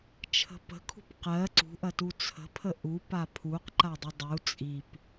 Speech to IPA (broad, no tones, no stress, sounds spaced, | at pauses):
t͡ʃʰ ə̤ p ə̤ kʰ ṳ p q ɜ ǀ ṳ ʔ ɐ t u t͡sʰ ə̤ pʰ ə ʔ u p a pʰ u q ǃ a dˤ ə dˤ u t͡sʼ i p